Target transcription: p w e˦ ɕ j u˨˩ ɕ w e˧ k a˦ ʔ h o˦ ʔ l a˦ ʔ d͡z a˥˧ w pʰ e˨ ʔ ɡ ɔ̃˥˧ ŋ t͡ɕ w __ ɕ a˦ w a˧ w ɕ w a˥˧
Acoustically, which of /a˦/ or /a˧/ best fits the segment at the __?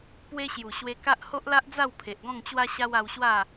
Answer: a˦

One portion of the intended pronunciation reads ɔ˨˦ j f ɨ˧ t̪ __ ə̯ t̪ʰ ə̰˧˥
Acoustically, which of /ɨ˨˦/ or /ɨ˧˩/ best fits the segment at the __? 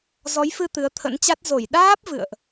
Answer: ɨ˨˦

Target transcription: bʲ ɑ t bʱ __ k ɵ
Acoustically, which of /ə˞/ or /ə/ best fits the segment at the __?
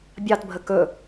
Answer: ə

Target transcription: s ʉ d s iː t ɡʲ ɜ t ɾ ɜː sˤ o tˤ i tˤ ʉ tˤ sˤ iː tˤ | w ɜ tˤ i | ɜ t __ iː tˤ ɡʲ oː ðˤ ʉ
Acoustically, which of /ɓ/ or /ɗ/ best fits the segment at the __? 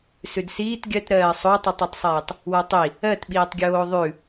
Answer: ɓ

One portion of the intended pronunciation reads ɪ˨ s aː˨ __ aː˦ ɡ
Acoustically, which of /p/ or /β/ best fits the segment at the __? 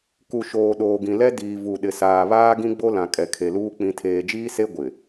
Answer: β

